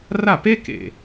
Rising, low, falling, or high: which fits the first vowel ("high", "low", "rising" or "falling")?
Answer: falling